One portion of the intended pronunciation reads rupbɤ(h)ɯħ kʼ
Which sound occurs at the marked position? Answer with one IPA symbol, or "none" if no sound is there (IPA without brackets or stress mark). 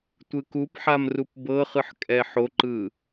χ